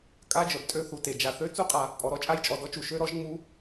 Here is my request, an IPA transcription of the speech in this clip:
kʼ a˦˥ d͡ʒ œ˨ b tʼ ø˦˥ θ u˨ t e˨ d͡ʒ a˨ θ ø˦˥ t͡s u˦˥ qʼ a˨ | pʼ ɔ˨ ɾ ɔ˦˥ t͡ʃʼ a˦˥ j t͡ʃʼ ɔ˨ d ɔ˦˥ t͡ʃ u˨ ʃ ø˦˥ ɾ ɔ˦˥ ʒ ŋ͡m u˦˥

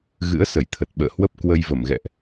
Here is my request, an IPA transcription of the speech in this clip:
ɣ ɨ̰˧˥ ə̯ s ə˧˩ j t̪ʰ ə˨˩ t̚ ɓ ə̰ː˧˨ h w ə˦˥ p̚ k w ə˧ j v ə˧˩ m ɣ ɛ̰˧˨ ʔ

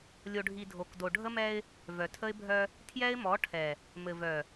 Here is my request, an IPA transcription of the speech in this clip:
lʲ o˨ ɖʱ i˨ dʱ o˨ k d o˨ ɖʱ ə˦ m ɛ˦ ɪ̯ | v œ˨ tʰ ə˦ ɪ̯ bʱ œ˦ | tʰ j ɛ˦ ɪ̯ m ɔ˨˦ ʈʰ ɛ˨ | m ɘ˨ v œ˨

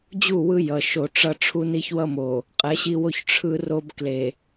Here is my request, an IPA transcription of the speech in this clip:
d͡ʑ u˦˨ w ɯ˦ j ʌ˨ ʃ o˨ ʈ͡ʂ ʌ˦ ʈ͡ʂʰ u˦ n i˦ ç w ʌ˦ m o˨ | qʼ ɛ˨˦ ɕ i˦ w o˦ ç ʈ͡ʂʰ ɯ˦ r o˦ b k l e˨

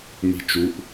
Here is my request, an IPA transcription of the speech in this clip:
m i̤ t͡ʃ u ʔ

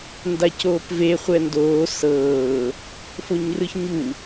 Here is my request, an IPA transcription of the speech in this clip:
n d a c oː p v e χʷ ɛ n d oː s ɤː | f o ɲ r ɯ ç ɲ u

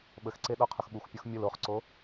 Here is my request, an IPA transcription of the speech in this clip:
ɓ ə x ǀ e ɗ ɔ qʰ ʊ x ɓ u xʷ pʲ u x mʲ ʊ l o χ ǀ o

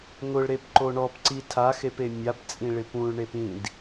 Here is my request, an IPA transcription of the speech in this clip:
ŋ ʊ ɭ ɾ e p ǃ o ɳ ɔ p ǀ i tʰ a x e p e mʲ a p t͡sʼ ĩ ɭ ɪ p ũ ɭ ɳ e p ĩ d

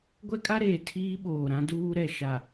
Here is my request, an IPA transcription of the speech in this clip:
ɡʷ ɛ˦ kʼ a˦ ɾ eː˨ tʰ iː˦ ɓ oː˨ ɾ ã˦ d uː˦ ɾ ɛ˨ ʃ a˨

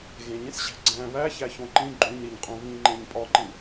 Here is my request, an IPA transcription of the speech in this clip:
ɣ ẽ ɲ ẽ s ɕ æ̤ ɡ͡ǀ æ̃ β æ ç æ ç õ ǃ ĩ ɡ͡ǃ ũ ɲ ɾ i ɲ qʼ ũ β ĩ ŋ͡ǃ ẽ ɲ pʼ ɒ ǃ ĩ

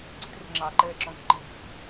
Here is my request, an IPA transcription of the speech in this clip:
ǀ i̤ t r ɛ̤ ŋ͡ǁ ɑ ǃ ɛː ǁ ɔ̃ k ǃ iː k

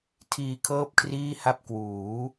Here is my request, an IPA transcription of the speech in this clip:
tʰ iː˧ kʰ ɤː˥˩ p̚ kʰ r iː˥˩ h a˥˩ p̚ k w uː˩˦

